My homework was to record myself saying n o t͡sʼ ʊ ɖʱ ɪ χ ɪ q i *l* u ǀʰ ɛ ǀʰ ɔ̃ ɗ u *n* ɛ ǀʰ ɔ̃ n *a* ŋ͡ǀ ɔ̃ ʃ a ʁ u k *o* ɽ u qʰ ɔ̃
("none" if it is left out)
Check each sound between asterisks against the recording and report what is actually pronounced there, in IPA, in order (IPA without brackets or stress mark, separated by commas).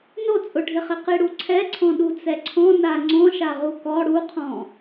ɽ, t͡s, a, ɔ